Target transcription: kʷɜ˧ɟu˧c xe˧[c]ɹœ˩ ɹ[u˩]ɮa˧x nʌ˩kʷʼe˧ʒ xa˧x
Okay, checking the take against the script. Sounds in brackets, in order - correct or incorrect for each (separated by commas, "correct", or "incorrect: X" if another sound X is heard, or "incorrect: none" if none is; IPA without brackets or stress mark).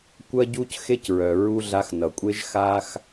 correct, incorrect: u˧